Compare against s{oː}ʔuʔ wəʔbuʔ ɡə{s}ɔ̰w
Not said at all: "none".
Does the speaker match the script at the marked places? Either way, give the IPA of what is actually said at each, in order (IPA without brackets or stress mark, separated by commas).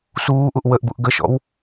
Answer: uː, ʃ